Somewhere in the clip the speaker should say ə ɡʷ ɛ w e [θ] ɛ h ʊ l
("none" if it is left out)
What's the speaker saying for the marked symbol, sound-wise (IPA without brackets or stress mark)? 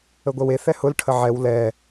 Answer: θ